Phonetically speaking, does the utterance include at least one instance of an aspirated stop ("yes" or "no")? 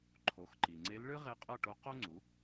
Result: yes